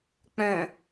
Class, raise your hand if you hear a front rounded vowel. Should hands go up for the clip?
yes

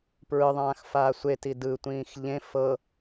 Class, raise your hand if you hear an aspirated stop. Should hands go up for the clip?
no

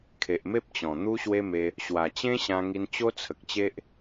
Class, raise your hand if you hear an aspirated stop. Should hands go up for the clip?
yes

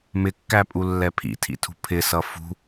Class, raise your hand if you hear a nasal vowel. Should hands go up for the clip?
no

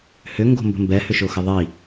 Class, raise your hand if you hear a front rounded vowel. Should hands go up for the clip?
yes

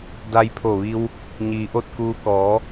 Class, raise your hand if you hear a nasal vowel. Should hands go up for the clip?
no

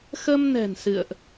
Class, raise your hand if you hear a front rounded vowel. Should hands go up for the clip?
no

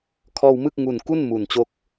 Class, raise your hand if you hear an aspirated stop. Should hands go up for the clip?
yes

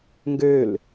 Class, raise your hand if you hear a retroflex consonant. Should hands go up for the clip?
no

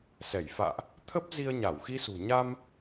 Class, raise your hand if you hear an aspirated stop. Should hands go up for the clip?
yes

